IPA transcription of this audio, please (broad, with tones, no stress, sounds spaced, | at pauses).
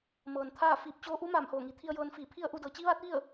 m ɤː˩ n t̪ʰ aː˥˨ f iː˧˩ p̚ t͡ɕ oː˧ ʔ u˧˥ m aː˧˩ m h oː˧˩ ŋ i˩˧ t̪ʰ i˧ ə̯ j ɤː˧ n f iː˧˩ pʰ i˥˨ ə̯ ʔ u˥˨ d ɤː˩˧ t͡ɕ i˧˥ ʋ aː˧˥ t̚ ʋ i˥˨ ə̯